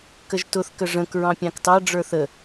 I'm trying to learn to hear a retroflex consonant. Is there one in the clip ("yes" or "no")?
yes